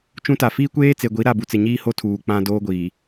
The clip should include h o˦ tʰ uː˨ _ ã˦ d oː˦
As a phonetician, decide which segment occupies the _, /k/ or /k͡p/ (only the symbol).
k͡p